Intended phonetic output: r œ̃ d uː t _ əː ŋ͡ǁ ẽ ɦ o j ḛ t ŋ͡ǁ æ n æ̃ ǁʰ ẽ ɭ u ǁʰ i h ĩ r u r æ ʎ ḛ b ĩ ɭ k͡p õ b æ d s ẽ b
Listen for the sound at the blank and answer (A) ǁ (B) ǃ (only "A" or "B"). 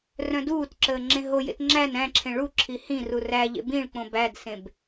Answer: A